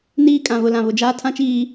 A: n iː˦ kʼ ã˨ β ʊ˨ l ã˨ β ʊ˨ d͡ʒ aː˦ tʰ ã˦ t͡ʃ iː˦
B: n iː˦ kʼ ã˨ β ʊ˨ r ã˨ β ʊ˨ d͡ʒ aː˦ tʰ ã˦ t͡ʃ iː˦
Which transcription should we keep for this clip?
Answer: A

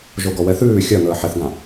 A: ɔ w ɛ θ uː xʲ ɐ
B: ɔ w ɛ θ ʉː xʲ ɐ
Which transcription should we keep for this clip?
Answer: B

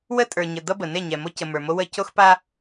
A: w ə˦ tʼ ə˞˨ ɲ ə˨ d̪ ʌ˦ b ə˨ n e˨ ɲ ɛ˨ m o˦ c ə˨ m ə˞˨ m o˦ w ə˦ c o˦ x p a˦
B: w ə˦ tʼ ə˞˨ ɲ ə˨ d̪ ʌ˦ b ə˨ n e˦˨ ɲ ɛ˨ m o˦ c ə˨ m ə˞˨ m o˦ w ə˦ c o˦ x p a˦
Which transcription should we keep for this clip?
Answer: B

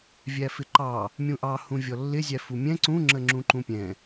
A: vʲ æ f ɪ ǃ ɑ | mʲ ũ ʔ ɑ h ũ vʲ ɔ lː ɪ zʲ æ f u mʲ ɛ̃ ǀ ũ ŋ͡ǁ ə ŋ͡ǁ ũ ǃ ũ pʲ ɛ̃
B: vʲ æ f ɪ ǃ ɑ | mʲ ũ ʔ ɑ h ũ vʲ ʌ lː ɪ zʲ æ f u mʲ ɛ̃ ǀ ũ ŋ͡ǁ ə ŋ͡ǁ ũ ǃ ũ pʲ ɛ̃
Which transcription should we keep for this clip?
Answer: A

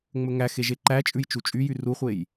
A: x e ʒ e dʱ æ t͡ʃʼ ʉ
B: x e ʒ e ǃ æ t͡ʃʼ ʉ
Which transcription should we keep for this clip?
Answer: B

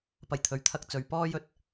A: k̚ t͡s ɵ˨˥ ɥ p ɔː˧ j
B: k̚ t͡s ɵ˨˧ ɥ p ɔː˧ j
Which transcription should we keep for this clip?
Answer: B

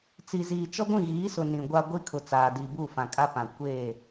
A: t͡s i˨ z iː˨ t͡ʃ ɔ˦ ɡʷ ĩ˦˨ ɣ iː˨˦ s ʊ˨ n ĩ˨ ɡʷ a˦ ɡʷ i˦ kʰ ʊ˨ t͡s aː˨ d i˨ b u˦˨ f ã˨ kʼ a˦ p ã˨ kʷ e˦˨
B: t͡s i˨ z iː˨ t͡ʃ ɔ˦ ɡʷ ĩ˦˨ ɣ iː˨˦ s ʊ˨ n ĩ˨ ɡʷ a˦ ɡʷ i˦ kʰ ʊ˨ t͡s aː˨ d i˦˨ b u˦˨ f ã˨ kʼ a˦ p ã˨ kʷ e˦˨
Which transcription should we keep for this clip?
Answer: A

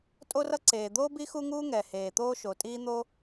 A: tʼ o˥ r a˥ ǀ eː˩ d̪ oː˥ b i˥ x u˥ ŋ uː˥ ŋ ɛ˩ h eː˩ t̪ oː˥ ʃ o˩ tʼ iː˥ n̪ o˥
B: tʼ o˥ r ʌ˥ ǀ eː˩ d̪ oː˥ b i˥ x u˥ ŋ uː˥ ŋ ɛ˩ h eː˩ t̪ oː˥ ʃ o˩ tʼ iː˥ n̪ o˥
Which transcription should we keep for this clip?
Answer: B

